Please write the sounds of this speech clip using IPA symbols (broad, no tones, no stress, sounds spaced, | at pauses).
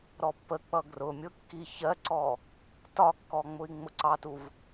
ɾ ɔ pː ə k͡p ʌ ɡ r ʊ mʲ ʊ kː i ç ɜ ǀ ɔ | t ɒ kː ɔ ŋ͡m ʊ i̯ ŋ͡m ʊ ǀ ɑ t u v